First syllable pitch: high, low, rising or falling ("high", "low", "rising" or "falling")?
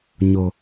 low